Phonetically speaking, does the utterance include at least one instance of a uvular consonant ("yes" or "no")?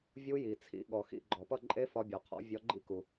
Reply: yes